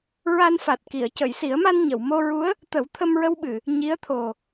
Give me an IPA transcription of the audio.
ɹ a˧ n f a˨˩ t̚ k i˨˩˨ ə̯ c ə˨˩˨ j s i˨˩˦ ə̯ m a˧ n ɲ ə˨˩˨ w m o˧ ɹ u˧˥ ə̯ | t̪ ə˨˩˦ w t̪ʰ ə˧ m ɹ ə˧ w ɓ ɨ˨˩˨ | ɲ i˧˥ ə̯ t̪ʰ o˨˩

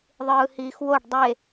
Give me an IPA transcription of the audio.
ðˤ ɯː h iː x w o ɖ dˤ e

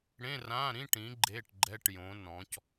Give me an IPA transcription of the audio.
ɽ ẽ˧˥˧ r ã˧˥˧ ɾ ĩ˧˥˧ ʈ ĩ˨˦ ɡ͡ǃ e˧˥˧ ʈ ɡ͡ǃ ɛ˧˥˧ ʈ j õ˨˦ n ɔ̃˨˦ c

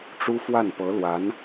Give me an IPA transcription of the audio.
ʈ͡ʂ u˥ f w a˥˩ n p ɤ˧˥ l w a˧˥ n

